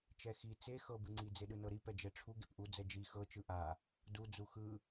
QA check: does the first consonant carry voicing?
no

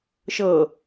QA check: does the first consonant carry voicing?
no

